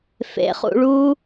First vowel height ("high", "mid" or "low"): mid